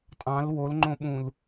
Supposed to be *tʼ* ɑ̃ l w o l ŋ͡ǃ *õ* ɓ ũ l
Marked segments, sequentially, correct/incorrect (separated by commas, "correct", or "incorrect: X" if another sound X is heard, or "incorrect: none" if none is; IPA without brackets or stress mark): correct, correct